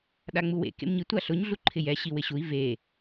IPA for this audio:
ɗaŋ͡muwḛ kḛmɲi tʷaɬʊɲ ɮuǃʰɪjɛ ɕiwɪɕui̯ ve

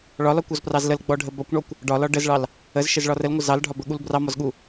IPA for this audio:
ɭɒlɒkʷɔzprɑz ləlɡ͡bɔɖʱə bɒkʷɳɔkʷ | ɖɒlɒ ɖəzɭɑl | əzʃəzɭɒ rəlŋʷə zɑlɖʱɒbəɠul brɑmɒzɠu

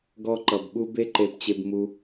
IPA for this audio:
ɡɔ˧ ǃʌ˨bɓu˧ be˦ǃe˧pt͡ɕe˧b mu˧

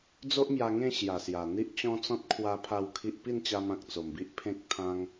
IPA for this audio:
d͡zo˦ʔmja˧ ŋẽ˥˧ɕja˨˩sja˨˩ n̪i˦ʔt͡ɕɔ̃˦t͡sɔ̃˦t̚ kʰwa˦pʰa˥˧wkʰi˦ʔ pi˥˧nt͡ɕa˧mã˨k̚ t͡so˨˩mbi˦ʔ pʰẽ˦k̚t̪ʰã˦ŋ

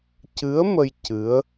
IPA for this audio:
cɨ˧˥ə̯mə˧j cɨ˧˥ə̯

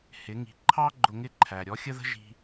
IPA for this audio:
hɪ˩˧ŋi̤˩˧ǃʰɑ˥ ɡ͡ǃʊ˧ŋɪ˥ǃʰæ˩ ɾʲɔ˧˥xʲə˥ðə̤˥ ʒi̤˥

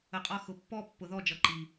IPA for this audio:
ə˨qʼɒ˧ xʊ˨pːɔ˦ pːʊ˨ðɔ˦˨d͡ʒʌ˨ ǃi˨

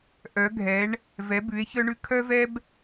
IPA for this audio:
ʔœ˨˦ɡʱɛ˨˦ɳ | vɛ˨˦bʉ˨˦e̯çœ˦ɳʉ˦ kʰœ˦vɛ˦b

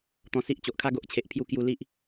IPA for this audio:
t̪ɔ̃˧si˦ʔ t͡ɕo˨ʔkʰa˦ ɡo˨ʔt͡ɕʰe˨ʔ pʰju˧ kju˧ li˦ʔ

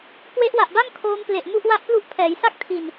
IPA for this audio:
kwe˦˥ʔwa˨˩ʔba˥˩ŋ kʰoː˦˥mple˨˩ʔ mu˥˩ʔwa˥˩ʔplu˥˩ʔ pʰɛː˩˦jsa˥˩k̚ tʰi˨˩n

